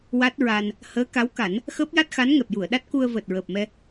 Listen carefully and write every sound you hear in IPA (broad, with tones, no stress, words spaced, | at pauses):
wa˦˥t̚ɹa˧n | həː˧˥ka˧˥wka˨˩˦n | xəː˦˥p̚ja˦˥t̚xa˧˥nŋɛ˨˩p̚ ju˨˩˨ə̯ɗa˦˥t̚ku˧ə̯ vəː˨˩t̚ɹəː˨˩p̚mɛ˧